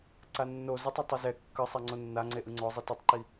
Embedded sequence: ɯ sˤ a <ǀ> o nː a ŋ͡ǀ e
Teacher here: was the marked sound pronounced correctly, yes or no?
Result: no